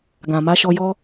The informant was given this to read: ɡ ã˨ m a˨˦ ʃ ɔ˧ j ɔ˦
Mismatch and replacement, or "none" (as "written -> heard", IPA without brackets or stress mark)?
none